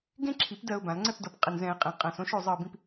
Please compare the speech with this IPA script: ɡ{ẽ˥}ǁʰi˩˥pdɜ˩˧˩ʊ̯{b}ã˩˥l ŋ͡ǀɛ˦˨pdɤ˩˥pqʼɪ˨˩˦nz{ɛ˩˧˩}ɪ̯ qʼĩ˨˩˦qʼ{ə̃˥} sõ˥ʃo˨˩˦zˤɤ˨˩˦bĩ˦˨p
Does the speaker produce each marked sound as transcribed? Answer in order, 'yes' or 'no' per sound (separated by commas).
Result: yes, yes, no, no